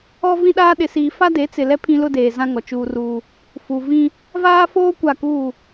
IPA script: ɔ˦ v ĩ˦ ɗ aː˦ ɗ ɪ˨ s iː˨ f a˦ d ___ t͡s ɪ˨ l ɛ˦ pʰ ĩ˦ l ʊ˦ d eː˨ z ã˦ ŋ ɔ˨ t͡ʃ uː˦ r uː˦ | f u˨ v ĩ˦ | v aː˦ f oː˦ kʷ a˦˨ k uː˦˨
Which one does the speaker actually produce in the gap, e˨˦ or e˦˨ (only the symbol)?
e˨˦